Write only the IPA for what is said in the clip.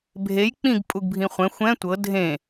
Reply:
bʱ e j k͡p ĩ ɡ pʼ u ɡ bʱ ĩ χʷ ɛ̃ xʷ ɛ̃ tʷ ɤ dʱ ẽ

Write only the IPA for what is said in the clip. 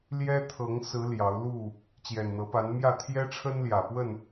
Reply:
l j ɛ˦ t̪ʰ ɤ˨˦ ŋ s ɹ̩˨˦ l j ɑ˨˦ ʊ̯ l u˥˨ | t͡ɕ j ɛ˨˩ n n̪ ɤ˨˦ p a˨˦ n m j ä˥˨ t̪ʰ j ɛ˦ ʈ͡ʂʰ ə˦ n l j ä˨˩ p w ə˥˨ n

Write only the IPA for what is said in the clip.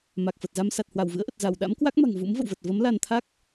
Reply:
m a˨˩ k̚ f ə˨˩ t̚ z a˧ m s a˨˩ t̚ h w a˧˩ w v ɨ̰˧˥ ə̯ ʔ ə˨˩ t̚ z a˧˩ w ɗ a̰˧˥ m k w a˦˥ k̚ m a̤˨˩ ŋ v ṵ˧˥ m v ə̰˧˨ w v ə˨˩ t̚ v ə˨˦ m l a˧ n t̪ʰ a˦˥ k̚

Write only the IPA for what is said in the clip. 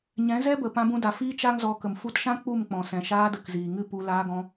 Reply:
ɲ ɛ̃˨˦ z ɛ˦ b ə˨ p ã˧ b ũ˧ d a˨ f iː˦ t͡ʃ a˦ ŋ z ɔ˧ k ə˨ m f u˧ t ʃ ã˦ k͡p u˦˨ m k͡p ɔ̃˨ s ɛ̃˨ ʃ aː˧ d ə˨ k z iː˨ ŋ ɨ˦ p u˧ l aː˧ ɡ ɔ̃˧

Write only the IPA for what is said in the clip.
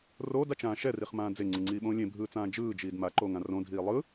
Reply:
r oː d a t͡ʃ ãː ʃ ɛ r i χ m ãː d͡z e ŋ͡ǀ ɯ ŋ͡ǀ iː ɓ õː lʲ ẽ bʱ ɯː t͡s ãː d͡ʒ ɯː d͡ʒ iː d m a ǃ oː ŋ ã r õ dʱ iː lˠ ɯ

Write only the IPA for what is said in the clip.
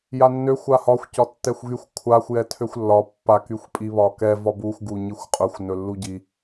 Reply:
j a nː ø xʷ a h ɒ xʷ c ɒ tː ɛ xʷ ɣ y xʷ kʷʰ a xʷ j ɛ tʰ ø xʷ lː ɒ pː a k y xʷ pʼ i β ɒ k ɛ v ɒ b u xʷ ɡ u ɲ i xʷ qʼ ɵ xʷ n ɵ lː u ɟ i

